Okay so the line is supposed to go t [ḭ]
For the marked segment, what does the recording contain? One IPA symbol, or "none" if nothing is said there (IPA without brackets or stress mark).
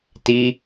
i